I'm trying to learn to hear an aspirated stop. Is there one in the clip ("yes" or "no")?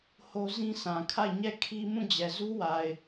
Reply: yes